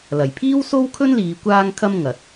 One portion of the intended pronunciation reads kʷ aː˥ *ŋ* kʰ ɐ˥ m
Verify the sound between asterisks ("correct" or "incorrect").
correct